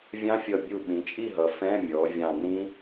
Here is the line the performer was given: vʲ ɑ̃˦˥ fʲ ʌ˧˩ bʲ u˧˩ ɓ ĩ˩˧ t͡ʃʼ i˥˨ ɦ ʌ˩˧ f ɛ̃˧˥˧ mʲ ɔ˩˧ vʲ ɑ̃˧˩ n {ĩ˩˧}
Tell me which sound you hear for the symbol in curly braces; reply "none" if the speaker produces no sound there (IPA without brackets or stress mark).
ĩ˦˥